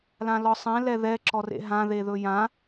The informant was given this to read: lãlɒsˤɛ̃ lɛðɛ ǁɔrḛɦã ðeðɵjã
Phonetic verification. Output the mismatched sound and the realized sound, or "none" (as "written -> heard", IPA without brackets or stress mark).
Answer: none